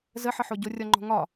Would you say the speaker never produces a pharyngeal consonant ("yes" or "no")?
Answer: no